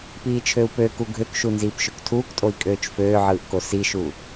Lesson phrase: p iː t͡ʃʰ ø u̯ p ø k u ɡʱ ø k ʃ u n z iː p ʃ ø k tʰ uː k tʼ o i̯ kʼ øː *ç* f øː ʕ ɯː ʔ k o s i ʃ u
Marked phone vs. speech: incorrect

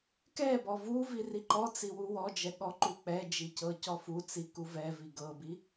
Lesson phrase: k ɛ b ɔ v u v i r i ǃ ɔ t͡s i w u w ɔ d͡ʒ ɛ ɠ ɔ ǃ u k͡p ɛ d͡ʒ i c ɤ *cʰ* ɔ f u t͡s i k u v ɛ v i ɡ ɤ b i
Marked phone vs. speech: incorrect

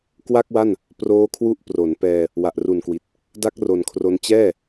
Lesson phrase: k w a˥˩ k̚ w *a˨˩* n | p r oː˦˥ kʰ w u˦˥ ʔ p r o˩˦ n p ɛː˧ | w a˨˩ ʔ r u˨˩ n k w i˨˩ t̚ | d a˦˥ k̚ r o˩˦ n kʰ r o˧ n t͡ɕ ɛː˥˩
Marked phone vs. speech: incorrect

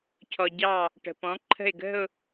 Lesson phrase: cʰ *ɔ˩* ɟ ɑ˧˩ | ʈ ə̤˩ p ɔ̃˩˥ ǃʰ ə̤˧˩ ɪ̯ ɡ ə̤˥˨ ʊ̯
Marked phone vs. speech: correct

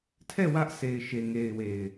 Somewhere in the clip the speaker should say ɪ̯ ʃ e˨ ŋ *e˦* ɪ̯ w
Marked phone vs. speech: incorrect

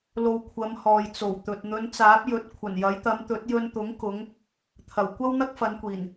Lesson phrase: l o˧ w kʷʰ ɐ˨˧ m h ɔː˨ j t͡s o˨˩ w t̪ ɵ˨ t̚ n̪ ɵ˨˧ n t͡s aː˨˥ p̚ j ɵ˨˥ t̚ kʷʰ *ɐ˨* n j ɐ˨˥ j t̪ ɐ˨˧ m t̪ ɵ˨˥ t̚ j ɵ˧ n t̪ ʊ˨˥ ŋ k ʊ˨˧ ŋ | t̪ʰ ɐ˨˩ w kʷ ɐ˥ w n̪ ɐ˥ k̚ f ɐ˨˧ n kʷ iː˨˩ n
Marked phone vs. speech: incorrect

